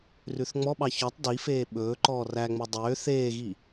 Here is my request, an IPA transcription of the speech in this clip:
r ʉ θ ŋ͡m ɔ ɓ ɑ ç ɔ tˤ d i f eː ɓ ɵː ǃ ɔː r æ ŋ͡m o dˤ øː θ eː ɣ i

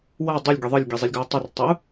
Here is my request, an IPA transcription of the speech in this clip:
w a dˤ u lʲ ɡʲ ʌ ðˤ ɯ lʲ ɡʲ e zˤ i lʲ ɡ ʌ i̯ tˤ ɯ r tˤ i u̯

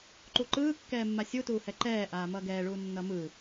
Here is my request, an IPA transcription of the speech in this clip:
ǃ u ǃ ɯː kː ɛː mː a sʲ u t uː h ɛ ǃ ɛː ʔ aː m ʌː ɡ ɛː ɭ uː nː ʌ m ɯ

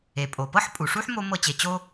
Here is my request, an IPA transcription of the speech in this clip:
e˩ pʼ o˩ p ɤ˥ ħ pʼ u˩ ʂ u˥ ħ m o˦ m ɤ˦ t͡ɕ e˨ t͡ɕ o˥

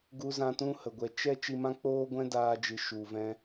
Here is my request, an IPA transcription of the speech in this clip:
ɡ u˧ z ã˧ t ũ˦ h ə˨ ɡʷ ɛ˧ t͡ʃ ɛ˦ t͡ʃ i˧ m ã˦ k͡p oː˦ ɡʷ ɛ̃˦ d aː˦ d͡ʒ ɨ˧ ʃ u˨ v ɛ̃˧

